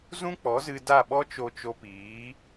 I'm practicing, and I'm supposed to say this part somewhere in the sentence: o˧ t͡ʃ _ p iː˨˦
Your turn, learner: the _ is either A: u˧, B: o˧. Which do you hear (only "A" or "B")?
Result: B